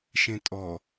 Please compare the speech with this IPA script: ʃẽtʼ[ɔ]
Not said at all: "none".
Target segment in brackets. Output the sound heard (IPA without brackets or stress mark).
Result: ɔ